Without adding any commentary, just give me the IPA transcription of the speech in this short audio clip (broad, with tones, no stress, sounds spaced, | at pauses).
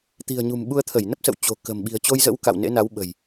t̪ i̤˨˩ ə̯ ɲ ṳ˨˩ m ɓ u˧ ə̯ t̪ʰ ə˧˩ j n ə˦˥ p̚ s ə̰˧˨ w t͡ɕ o̤˨˩ k ə̤˨˩ m ɓ i̤˨˩ ə̯ t͡ɕ o˧ j z ə̰˧˥ w k a̰˧˨ w n ḛ˧˥ n a˨˦ w ɓ ə̤˨˩ j